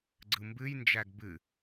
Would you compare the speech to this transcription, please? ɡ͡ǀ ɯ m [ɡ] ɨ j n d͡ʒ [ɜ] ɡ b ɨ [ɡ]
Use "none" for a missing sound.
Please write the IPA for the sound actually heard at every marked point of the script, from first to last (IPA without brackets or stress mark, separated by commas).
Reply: b, æ, none